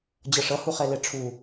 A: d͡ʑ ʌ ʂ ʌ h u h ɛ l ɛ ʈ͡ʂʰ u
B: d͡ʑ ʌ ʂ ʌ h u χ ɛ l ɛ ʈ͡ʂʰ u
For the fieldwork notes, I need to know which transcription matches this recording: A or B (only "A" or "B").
B